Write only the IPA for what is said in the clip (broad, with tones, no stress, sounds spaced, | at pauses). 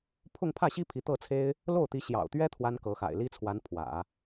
pʰ ʊ˥˧ ŋ pʰ ä˥˩ ɕ i˥ pʰ i˧˥ t̪ ɤ˥˩ t͡sʰ e˥ ɪ̯ | l o˥˩ ʊ̯ t̪ i˧˥ ɕ j ɑ̰˨˩ ʊ̯ t̪ ɥ ɛ˥ t̪ʰ w a˥ n k ɤ˧˥ x a̰˨˩ ɪ̯ l i˥ t͡sʰ w a˧˥ n pʰ w ä̰˨˩˦